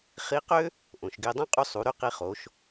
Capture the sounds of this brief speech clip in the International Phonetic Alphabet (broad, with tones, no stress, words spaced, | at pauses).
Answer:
χi˧˥qø˥ | ʔõ˩ʃɡe˧dˤõ˥ qʼu˧sˤu˩˧ ɾy˧qi˧χo˩˧ʃ